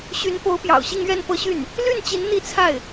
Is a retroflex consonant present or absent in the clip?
absent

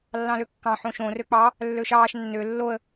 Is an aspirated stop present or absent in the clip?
absent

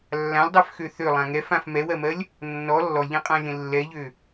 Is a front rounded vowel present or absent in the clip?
present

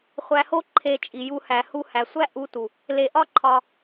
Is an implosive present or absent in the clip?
absent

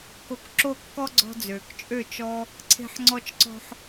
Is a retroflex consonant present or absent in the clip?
absent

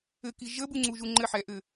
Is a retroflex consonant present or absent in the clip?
absent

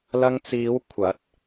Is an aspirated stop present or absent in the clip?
present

